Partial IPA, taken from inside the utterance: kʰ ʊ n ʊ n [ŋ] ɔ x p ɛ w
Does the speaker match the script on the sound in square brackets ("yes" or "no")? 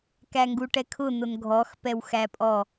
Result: no